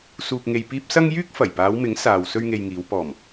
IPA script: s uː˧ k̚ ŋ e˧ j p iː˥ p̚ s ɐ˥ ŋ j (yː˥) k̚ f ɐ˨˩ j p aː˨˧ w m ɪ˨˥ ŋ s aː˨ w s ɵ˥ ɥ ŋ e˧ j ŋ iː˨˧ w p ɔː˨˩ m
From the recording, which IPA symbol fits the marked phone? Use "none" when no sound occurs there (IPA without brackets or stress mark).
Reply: yː˥